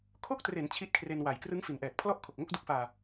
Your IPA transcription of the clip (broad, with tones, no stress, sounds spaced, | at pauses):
kʰ o˦˥ k̚ t r e˩˦ n t͡ɕʰ i˦˥ t̚ kʰ r e˧ n w a˨˩ j k r ɯ˦˥ ŋ f i˩˦ n ʔ ɛː˨˩ k̚ pʰ l ɔ˥˩ ʔ kʰ o˨˩ k̚ ŋ o˥˩ k̚ d u˦˥ k̚ f aː˧